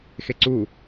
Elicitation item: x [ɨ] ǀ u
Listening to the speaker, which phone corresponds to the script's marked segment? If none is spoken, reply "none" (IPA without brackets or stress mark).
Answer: e